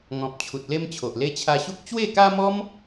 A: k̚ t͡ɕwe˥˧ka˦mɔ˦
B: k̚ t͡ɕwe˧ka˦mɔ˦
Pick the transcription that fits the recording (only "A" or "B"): A